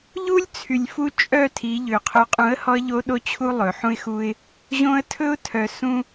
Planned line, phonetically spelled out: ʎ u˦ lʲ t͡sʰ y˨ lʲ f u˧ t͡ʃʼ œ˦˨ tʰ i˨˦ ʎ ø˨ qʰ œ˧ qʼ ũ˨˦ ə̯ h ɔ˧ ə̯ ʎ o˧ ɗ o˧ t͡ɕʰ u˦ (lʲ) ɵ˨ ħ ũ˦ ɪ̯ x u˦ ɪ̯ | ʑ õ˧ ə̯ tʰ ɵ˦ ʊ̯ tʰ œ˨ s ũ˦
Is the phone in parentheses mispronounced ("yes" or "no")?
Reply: yes